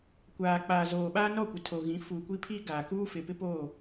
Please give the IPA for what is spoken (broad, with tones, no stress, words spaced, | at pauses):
kʷaː˨k͡paː˨zoː˨ ɓaː˦nɔ˦˨kʷɪ˨ tʰo˨ɣĩ˨˦ fuː˨kʷi˦pʰiː˦ ɡaː˨kuː˦ fɪ˨pɪ˦poː˦˨